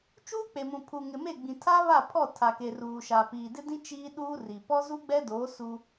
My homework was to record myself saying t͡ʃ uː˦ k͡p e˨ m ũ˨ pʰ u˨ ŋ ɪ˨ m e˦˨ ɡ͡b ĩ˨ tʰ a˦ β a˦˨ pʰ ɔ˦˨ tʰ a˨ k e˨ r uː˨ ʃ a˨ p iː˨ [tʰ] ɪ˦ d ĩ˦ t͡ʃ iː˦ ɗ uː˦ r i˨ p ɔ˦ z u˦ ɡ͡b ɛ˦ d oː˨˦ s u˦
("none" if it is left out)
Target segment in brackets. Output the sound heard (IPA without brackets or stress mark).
d